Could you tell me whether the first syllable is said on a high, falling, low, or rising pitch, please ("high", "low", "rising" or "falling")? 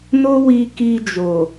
high